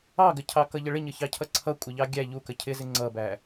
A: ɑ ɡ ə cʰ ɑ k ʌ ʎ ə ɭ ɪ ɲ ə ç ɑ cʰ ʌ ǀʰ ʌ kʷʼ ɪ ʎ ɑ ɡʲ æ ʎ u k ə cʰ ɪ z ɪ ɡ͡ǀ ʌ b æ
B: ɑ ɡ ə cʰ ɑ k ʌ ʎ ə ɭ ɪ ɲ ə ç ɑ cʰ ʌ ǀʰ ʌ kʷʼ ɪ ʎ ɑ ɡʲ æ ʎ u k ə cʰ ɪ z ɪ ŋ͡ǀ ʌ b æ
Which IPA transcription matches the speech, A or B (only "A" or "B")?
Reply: B